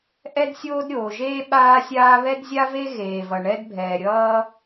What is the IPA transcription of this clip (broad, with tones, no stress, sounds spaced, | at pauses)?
ʔ ɛ˥ d sʲ oː˥ d ɾʲ oː˩ ʒ eː˥ ɓ aː˥ sʲ aː˥ β ɛ˥ d zʲ a˥ v e˥ ɣ eː˩ v ʌ˩ ɳ ɛ˥ d bʱ ɛː˩ ɾʲ ʌː˥